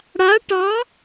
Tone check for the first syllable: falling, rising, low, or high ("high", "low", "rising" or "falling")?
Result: rising